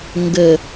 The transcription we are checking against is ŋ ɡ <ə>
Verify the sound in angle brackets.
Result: correct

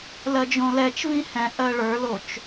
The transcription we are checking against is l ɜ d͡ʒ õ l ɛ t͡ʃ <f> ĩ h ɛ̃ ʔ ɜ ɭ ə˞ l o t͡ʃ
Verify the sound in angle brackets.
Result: incorrect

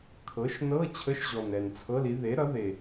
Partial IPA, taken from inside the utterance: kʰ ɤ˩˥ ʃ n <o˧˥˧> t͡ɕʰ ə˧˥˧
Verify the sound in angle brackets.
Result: incorrect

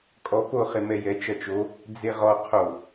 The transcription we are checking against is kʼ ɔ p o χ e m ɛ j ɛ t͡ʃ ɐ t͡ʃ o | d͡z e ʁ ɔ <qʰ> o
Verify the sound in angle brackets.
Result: correct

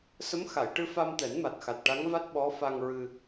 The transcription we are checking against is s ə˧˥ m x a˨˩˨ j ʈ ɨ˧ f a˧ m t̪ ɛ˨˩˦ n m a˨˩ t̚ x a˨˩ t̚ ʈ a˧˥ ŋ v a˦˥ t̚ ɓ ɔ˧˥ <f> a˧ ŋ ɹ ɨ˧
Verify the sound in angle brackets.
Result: correct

